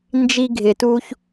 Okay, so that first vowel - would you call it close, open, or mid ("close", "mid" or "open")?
close